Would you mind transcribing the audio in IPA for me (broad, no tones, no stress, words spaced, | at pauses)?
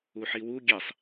uħiwu ɡʲesˤ